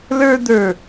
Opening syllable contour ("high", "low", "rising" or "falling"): high